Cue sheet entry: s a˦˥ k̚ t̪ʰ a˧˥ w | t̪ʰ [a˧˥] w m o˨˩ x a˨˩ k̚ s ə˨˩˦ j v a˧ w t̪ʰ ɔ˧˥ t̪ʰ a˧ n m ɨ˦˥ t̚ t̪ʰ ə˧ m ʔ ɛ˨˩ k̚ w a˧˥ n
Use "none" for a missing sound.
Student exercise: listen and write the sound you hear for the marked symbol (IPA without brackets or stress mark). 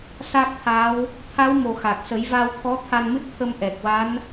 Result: a˧˥